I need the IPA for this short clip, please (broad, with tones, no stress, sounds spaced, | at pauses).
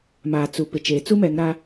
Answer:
m aː˨ t͡s u˨ p ɪ˨ t͡ʃ eː˨ t͡s u˦ m ɛ˨˦ ŋ ɾ a˦